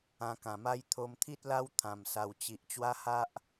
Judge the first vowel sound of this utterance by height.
low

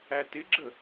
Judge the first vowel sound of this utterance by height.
low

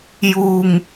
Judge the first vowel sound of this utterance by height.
high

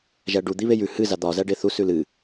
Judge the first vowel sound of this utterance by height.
low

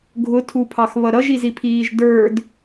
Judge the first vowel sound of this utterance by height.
high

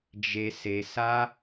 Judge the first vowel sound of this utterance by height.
mid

